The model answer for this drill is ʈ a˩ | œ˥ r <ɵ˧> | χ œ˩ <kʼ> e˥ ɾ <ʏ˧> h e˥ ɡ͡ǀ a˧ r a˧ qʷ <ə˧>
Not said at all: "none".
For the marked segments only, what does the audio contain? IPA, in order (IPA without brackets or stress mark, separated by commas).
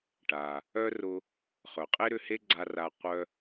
ʊ˧, qʼ, ʏ˧, œ˧